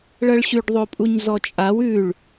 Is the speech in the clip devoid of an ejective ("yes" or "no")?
no